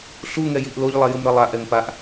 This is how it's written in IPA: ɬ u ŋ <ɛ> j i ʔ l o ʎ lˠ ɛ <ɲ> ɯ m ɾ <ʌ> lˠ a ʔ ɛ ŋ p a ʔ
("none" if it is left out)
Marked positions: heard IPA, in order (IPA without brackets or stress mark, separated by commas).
ɛ, j, ʌ